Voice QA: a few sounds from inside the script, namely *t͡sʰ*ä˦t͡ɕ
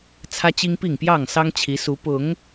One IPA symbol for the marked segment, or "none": t͡sʰ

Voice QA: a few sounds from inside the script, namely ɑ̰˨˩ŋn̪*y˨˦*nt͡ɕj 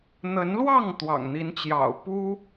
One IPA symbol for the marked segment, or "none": i˨˦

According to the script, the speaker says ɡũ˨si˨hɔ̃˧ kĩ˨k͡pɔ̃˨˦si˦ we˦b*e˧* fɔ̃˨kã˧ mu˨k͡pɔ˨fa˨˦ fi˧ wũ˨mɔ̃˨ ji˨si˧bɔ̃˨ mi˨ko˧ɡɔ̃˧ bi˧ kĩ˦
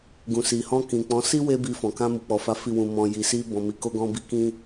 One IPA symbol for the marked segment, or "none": i˧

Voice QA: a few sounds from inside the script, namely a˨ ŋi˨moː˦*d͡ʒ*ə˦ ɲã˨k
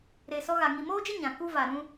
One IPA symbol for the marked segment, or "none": d͡ʒ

